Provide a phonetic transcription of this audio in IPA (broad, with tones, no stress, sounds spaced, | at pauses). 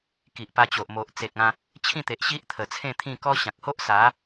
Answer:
k i˨ ʔ p a˧ t͡ɕ o˨ ʔ m o˨ ʔ t͡s e˨ k̚ ã˧ | t͡ɕʰ ĩ˥˧ t̪ e˨ ʔ ɕ i˦ ʔ t̪ʰ ə˨˩ t͡sʰ ẽ˥˧ t̪ʰ ĩ˥˧ k ɔ˦ ɕ ã˨ k̚ h o˦ ʔ s a˨˦